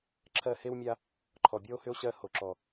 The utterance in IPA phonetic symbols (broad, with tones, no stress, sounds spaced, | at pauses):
ǁʰ ɜ˦˨ h e˦ w mʲ a˦ | ǃʰ ɔ˨ bʲ ɔ˦ o̯ h ʏ˦ o̯ ɕ ɜ˦˨ h o˨ ǁ ɔ˨